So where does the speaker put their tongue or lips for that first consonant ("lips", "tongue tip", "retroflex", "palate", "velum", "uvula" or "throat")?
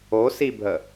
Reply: tongue tip